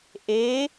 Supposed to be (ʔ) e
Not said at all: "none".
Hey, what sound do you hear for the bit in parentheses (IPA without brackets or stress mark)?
ʔ